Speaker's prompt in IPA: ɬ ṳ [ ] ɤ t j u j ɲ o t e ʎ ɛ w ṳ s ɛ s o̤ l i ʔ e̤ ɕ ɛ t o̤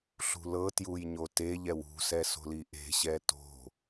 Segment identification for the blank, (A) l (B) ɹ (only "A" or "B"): A